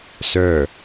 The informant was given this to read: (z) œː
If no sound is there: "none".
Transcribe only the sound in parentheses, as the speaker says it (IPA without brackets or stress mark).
s